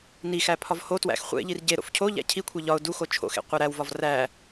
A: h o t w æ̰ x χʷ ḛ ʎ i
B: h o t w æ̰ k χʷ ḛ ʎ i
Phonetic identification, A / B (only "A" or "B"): A